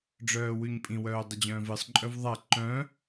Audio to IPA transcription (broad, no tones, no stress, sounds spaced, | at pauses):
ɖ͡ʐ œː w ʉ ɲ pʼ ĩ w œː dˤ ɪ d͡ʑ œ̃ː v ɨ sˤ ǃʼ œ v ðˤ a ǃ œ̃